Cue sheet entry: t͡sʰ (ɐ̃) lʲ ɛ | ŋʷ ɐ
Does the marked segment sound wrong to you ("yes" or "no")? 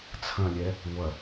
no